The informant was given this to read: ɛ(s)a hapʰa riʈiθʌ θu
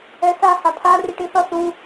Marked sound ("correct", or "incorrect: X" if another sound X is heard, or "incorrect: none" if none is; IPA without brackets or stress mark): correct